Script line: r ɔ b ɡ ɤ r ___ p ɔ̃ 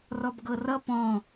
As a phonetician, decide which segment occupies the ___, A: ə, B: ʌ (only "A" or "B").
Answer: B